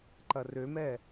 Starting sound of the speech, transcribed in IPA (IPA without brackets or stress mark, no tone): ǃ